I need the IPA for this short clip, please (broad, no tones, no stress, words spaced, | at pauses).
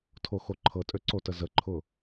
tʰoxoǃʰɤtʼø ǀotəzəǃʰʊ